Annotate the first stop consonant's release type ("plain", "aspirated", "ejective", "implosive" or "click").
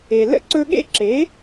click